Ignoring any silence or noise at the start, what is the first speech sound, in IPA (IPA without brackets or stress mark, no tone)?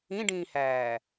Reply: ĩ